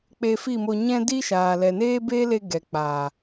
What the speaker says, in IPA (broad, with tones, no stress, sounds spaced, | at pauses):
k͡p e˧ f i˦˨ m o˧ ɲ ɛ̃˦ d i˦ ʃ aː˨ l ɛ˨ n eː˦ b eː˦ l e˧ ɡ ɛ˨ k͡p aː˨